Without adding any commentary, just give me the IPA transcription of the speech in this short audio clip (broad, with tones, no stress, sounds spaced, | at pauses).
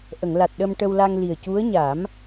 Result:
ʔ ə˨˩˨ ŋ l a˨˩ t̚ ɗ ə˧ m ʈ ə˧ w l a˧ ŋ l i˨˩ ə̯ c u˧˥ ə̯ ɲ a˨˩˦ m